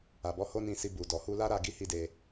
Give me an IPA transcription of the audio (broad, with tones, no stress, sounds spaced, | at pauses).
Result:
a˨ b ɔ˨˦ h o˦ n ĩ˧ s i˧ b u˨ d ɔ˨ h u˧ l a˦ ɾ a˦˨ ɡ i˧ h i˦ d e˧